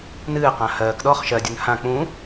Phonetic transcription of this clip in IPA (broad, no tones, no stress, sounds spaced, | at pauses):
n ɨː q ã h ɜː k ɗ ɔː χ ʃ ɜ dʲ ɵ n h ã k͡p ũ